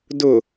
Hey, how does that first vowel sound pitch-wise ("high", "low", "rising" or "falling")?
low